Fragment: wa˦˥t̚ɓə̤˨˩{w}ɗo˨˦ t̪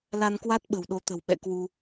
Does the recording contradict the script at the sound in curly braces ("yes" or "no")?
no